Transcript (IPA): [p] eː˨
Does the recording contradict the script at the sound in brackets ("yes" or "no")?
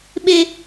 yes